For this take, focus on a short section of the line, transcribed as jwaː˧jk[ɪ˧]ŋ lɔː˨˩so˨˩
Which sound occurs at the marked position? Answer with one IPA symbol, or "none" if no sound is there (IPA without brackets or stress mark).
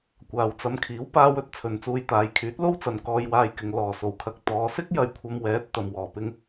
ɪ˨